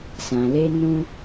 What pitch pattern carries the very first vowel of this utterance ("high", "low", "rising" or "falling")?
low